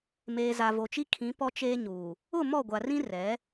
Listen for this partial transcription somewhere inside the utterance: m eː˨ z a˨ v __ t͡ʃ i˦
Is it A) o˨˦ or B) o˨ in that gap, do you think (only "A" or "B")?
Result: B